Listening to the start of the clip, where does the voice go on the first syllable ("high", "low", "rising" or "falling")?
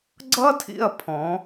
high